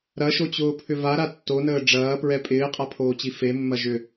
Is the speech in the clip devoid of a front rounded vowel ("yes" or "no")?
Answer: no